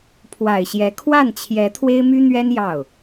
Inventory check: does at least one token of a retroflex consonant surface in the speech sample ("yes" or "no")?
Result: no